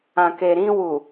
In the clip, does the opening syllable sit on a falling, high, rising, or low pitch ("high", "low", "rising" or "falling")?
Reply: low